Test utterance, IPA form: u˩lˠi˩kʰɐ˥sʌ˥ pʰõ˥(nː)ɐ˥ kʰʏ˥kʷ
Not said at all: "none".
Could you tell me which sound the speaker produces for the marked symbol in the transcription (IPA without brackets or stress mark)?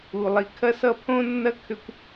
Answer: nː